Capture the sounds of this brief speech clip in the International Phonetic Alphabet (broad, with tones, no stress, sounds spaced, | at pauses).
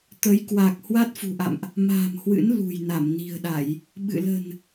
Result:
t̪ ə˨˦ j k w a˨˩ k̚ h w a˦˥ t̚ f ṳ˨˩ ʔ a̰˧˨ m ʔ | m a̤ː˨˩ m h w ɨ̰˧˥ n l ṳ˨˩ j n a˧˩ m n i̤˨˩ ə̯ ɗ a˧˩˨ j | ɓ ɨ̰˧˨ l ə̤˨˩ n